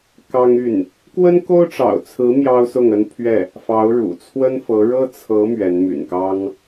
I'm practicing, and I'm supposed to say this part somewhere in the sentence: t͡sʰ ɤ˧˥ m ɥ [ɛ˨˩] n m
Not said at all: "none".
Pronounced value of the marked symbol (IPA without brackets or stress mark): ɛ˧˥